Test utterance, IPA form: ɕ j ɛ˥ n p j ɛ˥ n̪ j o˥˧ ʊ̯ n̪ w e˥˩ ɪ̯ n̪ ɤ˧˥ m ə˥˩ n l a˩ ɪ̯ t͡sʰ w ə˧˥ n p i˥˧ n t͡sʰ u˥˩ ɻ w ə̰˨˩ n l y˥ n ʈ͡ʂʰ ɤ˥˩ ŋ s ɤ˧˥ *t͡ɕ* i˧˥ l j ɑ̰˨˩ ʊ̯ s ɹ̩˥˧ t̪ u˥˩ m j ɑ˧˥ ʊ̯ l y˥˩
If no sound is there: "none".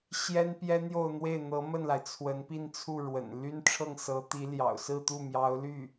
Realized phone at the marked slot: t̪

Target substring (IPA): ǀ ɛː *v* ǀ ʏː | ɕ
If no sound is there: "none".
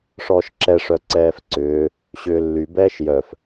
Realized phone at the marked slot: f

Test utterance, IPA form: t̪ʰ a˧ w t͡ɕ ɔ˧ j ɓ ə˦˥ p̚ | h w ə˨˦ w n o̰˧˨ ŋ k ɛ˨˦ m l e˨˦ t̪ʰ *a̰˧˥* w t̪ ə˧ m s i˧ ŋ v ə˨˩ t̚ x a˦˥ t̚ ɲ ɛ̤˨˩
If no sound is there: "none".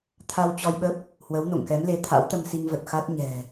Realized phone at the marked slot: a̰˧˥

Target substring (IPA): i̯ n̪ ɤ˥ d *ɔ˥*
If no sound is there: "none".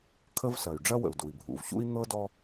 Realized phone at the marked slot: ɔ˥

